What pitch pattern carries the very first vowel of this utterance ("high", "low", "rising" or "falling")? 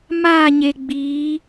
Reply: falling